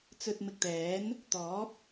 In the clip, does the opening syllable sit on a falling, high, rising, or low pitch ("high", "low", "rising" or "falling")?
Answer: low